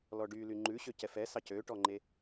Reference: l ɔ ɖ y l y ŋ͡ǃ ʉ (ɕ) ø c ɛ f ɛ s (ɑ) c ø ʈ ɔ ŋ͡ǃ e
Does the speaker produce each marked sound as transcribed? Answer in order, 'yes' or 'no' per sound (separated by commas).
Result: yes, yes